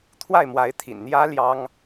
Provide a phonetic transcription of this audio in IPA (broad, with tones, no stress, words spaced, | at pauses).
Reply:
t̪ʰwa˥˩ɪ̯mwa˧˥ɪ̯t̪ʰḭ˨˩nn̪jä˥ ljɑ˥ŋ